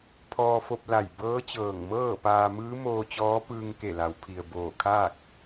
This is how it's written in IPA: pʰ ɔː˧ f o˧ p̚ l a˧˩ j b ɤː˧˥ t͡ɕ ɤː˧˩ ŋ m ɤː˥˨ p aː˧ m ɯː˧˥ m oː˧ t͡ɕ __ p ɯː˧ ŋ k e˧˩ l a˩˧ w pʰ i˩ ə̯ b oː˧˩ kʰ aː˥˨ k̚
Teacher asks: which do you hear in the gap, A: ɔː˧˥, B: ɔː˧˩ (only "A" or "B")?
A